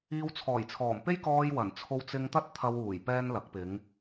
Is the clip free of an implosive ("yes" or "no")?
yes